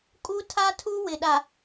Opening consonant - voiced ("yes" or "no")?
no